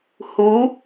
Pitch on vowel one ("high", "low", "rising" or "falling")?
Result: rising